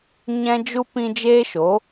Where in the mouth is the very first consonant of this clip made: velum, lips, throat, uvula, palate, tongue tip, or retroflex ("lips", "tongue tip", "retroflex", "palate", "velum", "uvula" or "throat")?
palate